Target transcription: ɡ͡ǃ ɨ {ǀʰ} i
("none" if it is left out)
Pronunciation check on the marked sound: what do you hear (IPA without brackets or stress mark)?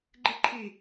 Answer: ǃʰ